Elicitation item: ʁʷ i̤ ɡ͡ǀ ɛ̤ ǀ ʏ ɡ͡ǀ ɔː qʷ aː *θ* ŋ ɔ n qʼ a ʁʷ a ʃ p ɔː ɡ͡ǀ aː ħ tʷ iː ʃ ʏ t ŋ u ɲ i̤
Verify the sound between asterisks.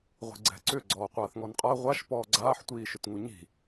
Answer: correct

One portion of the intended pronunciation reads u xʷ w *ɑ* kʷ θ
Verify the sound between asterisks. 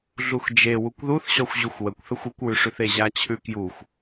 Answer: incorrect: ə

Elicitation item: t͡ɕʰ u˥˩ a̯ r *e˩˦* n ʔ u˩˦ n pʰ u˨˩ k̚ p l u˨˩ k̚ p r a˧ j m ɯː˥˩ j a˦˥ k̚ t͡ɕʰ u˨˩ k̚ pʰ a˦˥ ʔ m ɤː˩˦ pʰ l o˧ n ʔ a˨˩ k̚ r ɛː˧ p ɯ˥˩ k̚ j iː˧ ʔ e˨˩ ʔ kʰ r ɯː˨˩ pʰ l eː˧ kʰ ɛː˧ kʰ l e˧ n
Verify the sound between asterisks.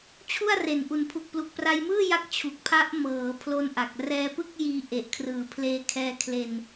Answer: incorrect: e˨˩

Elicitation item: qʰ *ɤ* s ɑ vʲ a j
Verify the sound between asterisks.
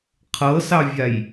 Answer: correct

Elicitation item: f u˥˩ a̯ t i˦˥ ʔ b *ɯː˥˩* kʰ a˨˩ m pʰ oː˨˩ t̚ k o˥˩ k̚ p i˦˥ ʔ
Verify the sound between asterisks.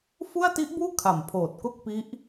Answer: incorrect: uː˥˩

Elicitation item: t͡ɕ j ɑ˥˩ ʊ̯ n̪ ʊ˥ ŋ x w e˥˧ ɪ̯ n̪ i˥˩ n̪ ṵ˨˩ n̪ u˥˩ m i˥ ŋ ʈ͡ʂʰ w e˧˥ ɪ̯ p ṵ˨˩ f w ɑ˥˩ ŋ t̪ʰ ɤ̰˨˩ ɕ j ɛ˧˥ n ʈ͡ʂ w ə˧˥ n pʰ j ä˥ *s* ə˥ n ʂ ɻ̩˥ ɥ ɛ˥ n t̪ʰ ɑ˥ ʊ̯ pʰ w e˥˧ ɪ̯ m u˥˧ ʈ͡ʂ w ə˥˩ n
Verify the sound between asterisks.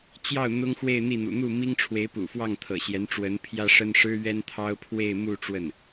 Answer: incorrect: ʂ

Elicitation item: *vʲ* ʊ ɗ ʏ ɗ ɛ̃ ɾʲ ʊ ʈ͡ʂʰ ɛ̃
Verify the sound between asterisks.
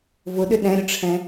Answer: incorrect: v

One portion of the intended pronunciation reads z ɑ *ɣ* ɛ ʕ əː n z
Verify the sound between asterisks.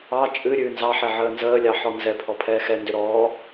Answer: incorrect: ħ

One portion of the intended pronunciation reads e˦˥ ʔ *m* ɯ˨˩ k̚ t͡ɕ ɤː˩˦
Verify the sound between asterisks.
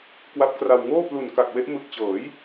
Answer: correct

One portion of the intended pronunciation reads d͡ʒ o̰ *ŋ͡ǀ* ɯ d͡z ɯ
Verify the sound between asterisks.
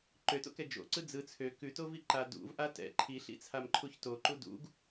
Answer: incorrect: ǀ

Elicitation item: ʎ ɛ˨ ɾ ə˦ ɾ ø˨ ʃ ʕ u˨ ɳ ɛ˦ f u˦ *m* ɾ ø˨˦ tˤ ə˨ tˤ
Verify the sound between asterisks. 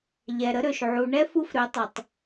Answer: incorrect: f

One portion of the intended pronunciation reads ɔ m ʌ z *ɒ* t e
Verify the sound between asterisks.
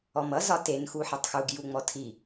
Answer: correct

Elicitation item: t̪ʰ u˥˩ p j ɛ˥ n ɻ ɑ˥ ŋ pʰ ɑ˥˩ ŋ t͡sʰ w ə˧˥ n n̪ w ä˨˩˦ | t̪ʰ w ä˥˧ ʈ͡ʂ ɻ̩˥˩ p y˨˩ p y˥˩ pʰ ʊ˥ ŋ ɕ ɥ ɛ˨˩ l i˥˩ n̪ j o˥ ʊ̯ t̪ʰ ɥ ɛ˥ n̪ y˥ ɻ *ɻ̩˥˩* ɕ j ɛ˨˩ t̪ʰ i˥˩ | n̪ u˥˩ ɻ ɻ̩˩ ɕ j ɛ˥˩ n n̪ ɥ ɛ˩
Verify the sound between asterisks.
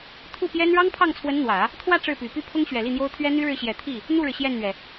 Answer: correct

